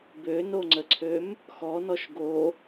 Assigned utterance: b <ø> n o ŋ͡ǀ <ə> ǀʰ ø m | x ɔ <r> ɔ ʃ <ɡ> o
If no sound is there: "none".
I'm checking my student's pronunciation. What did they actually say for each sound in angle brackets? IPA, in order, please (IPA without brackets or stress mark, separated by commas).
ø, ə, n, ɡ